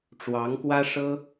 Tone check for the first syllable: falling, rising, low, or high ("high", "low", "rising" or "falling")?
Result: rising